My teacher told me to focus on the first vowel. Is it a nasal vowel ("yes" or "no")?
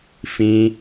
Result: yes